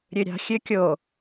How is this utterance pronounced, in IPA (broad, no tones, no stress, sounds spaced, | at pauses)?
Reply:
ɾʲ ø ɾʲ ɑ̤ xʲ ø kʲ o